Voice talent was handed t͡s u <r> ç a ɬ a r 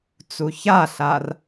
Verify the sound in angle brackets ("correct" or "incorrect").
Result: incorrect